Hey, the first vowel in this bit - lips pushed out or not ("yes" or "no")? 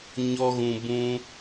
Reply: yes